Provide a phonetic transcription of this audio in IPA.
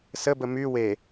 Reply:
s ə b ə m y w e

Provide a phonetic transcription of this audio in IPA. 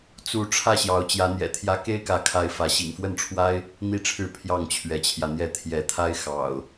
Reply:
t͡s u˨˦ ʈ͡ʂʰ ä˥˨ ɕ j ɑ˨˦ ʊ̯ t͡ɕ j ä˨˦ n̪ j ɛ̰˨˩ t̪ʰ j ä˦ k e˦ ɪ̯ k ä˨˦ kʰ a˨˦ ɪ̯ f ä˨˦ ɕ ḭ˨˩ ŋ f w ə˥˨ n ʈ͡ʂʰ w a˦ ɪ̯ | n̪ i˥˨ ʈ͡ʂʰ ɻ̩˥˨ pʰ j ɑ˥˨ ŋ t͡ɕʰ ɥ ɛ˨˦ t͡ɕʰ j ä˧ n̪ j ɛ˥˨ t̪ʰ j ɛ˨˦ t̪ʰ a˦ ɪ̯ x ɑ̰˨˩ ʊ̯

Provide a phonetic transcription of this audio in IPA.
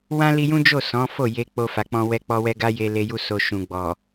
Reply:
w ã˦ l i˧ j ũ˦ d͡ʒ o˦˨ s ɔ̃˨˦ f o˦˨ j e˧ k͡p o˧ f a˨ k͡p ɔ̃˧ w ɛ˧ k͡p ɔ˧ w ɛ˧ ɡ a˧ j e˧ l e˧ j u˧ s o˨ ʃ ũ˨ ɡ͡b ɔ˨

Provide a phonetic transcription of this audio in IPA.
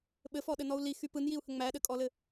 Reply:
ɓ ɘ f ɔ ɗ ɘ n ɔ u̯ l i x y p ɯ n j i u̯ h ə ŋ͡m æ ɗ ɘ kʼ ɔ l ɘ

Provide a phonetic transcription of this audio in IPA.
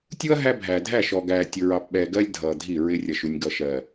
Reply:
tʲ u˦ ɐ̯ ɦ æ˦ bʱ æː˨ dʱ æ˦˨ ʃ ɔ˨ ɡ æː˨ tʲ ʊ˨ ɹ ɑ˨ p ɓ ɛː˨ ɡ ɜ˦ lʲ dʱ ʌː˨ dʱ i˦˨ ɹ ɪ˦ rʲ ʌ˨ ʃ u˨ nʲ ɡ ʌ˨ ʃ ɜ˨

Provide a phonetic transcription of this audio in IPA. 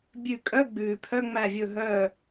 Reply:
bʲ ʉ˧˩ kʼ œ˧˥˧ ɡ͡b ʉː˩ pʰ œ˧˥˧ ŋ͡m æ˧˩ vʲ ɵ˧˩ ɦ œ˧˩

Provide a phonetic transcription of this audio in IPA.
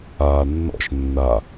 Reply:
aː nː ɔ̰ ʃ nː a

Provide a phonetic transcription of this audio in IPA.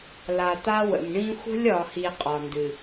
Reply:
l a˨ t̪ a˦ w ə̰˨ m ɳ ĩ˦ xʷ ə̤˦ lʲ ɒ˨ h i˨ qʼ ɒ˨ n d ɨ˨

